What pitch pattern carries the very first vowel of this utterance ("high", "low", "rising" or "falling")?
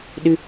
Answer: high